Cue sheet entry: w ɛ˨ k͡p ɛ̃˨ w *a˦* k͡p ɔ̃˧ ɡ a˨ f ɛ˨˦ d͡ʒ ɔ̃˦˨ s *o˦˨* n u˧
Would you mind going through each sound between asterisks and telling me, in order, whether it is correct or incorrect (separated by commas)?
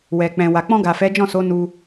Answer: incorrect, incorrect